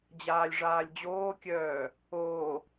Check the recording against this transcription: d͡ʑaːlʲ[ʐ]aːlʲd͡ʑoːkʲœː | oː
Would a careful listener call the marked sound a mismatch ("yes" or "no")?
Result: no